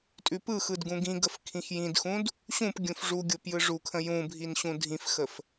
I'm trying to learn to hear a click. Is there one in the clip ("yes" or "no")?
no